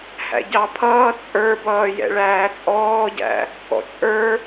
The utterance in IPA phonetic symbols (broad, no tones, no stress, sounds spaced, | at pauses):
h æ̰ ɟ ɑ pʰ ʌː t͡sʼ ə˞ b ʌː j ɛ̰ ɭ æː t͡sʼ ɔː ɟ æ̰ | k ɔ̰ t͡ʃʼ ə˞